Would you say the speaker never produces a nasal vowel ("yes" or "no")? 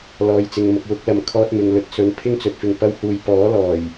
yes